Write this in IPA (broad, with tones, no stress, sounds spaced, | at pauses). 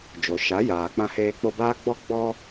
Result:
d͡ʒ o˨ ʃ a˨˦ j aː˨ k͡p ã˧ h eː˧ k͡p o˧ b aː˦ ɡ͡b ɔ˦ ɡ͡b ɔ˧